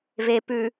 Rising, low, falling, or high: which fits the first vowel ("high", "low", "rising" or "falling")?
low